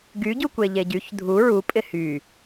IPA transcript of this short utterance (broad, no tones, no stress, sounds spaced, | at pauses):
ɡ y ɟ u kʷ e ʎ e ɟ y ç dʱ u ɹ u pʼ ɪ h y